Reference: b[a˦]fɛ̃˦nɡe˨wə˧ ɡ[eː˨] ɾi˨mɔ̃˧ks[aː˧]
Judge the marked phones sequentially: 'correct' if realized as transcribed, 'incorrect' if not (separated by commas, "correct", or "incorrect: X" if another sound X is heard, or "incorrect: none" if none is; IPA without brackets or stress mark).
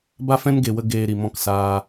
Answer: correct, correct, correct